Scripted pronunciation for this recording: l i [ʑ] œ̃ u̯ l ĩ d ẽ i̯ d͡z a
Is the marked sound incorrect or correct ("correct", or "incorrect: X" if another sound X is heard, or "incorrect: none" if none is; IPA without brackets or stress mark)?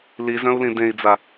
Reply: incorrect: z